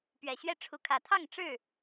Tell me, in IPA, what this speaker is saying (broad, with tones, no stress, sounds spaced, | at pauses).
p ɥ ɛ˨˩ ɕ ɥ ɛ˦ ʈ͡ʂʰ u˨˦ kʰ ä˨˩ t̪ʰ ɑ˥˨ ŋ ʈ͡ʂ ɻ̩˥˨